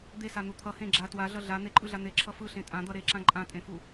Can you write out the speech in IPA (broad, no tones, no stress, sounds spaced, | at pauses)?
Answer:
d̪ e s a n̪ u t̪ʰ ʌ h ẽ ɡ͡ǁ a t w a ɮ ʌ ɮ a n̪ e ǃʼ ɯ ɮ a n̪ e ǁʰ ʌ f ɯ ɬ ẽ tʼ ã d̪ ʌ ɾ e ǁ ã ǃʼ ã tʼ ẽ f u